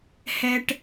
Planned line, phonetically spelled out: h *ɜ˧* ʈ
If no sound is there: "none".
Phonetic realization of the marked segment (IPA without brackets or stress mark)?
ɛ˧